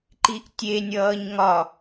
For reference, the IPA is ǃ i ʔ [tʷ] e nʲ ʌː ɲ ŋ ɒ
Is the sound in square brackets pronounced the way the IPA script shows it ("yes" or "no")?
no